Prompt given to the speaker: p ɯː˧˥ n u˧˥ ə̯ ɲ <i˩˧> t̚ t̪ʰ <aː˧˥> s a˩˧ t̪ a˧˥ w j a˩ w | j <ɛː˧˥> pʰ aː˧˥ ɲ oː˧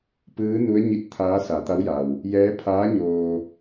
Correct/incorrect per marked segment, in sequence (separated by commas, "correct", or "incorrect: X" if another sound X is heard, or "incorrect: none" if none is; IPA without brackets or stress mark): incorrect: i˧˥, correct, correct